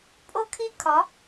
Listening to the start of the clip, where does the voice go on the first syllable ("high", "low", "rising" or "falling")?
high